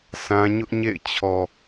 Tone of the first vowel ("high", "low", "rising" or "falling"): high